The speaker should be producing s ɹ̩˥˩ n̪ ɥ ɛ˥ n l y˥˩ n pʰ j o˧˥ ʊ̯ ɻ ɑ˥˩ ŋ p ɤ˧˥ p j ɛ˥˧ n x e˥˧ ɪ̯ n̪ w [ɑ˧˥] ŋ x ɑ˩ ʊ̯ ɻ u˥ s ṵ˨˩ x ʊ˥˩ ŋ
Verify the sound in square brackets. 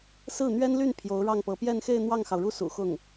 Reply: incorrect: ɑ˥˩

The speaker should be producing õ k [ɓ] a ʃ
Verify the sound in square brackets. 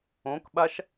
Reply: correct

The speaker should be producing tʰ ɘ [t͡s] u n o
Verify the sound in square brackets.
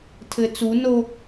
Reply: correct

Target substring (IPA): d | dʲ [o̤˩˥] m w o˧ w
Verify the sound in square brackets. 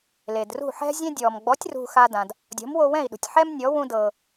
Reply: incorrect: ɔ̤˩˥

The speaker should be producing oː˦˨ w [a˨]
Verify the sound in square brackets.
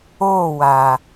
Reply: correct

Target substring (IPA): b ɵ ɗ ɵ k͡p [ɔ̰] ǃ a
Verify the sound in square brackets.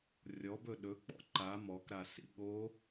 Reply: correct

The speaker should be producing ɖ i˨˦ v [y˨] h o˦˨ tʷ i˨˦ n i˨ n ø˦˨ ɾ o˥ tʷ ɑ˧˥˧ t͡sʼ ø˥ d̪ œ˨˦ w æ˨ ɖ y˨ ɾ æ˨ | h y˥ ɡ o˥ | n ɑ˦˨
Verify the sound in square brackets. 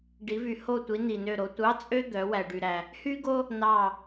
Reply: correct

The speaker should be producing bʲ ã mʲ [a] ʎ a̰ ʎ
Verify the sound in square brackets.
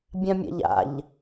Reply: incorrect: a̰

